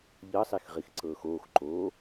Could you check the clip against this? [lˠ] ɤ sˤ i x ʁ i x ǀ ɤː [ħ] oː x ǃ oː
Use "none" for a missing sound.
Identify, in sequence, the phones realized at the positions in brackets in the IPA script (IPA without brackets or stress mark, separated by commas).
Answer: ʎ, x